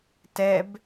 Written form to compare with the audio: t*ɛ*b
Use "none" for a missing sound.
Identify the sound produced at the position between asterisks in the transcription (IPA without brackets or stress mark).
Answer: ɛ